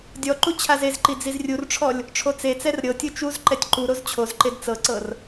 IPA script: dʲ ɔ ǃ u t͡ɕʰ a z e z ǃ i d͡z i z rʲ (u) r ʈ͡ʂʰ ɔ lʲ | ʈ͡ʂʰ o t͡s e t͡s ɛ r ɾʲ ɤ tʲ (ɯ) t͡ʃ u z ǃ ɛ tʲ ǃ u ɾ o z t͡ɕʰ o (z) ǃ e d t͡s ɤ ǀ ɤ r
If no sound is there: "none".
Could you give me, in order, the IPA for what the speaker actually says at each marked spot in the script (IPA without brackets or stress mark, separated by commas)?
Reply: u, ɯ, z